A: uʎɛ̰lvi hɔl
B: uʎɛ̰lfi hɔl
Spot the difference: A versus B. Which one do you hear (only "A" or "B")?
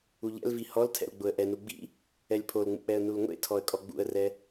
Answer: A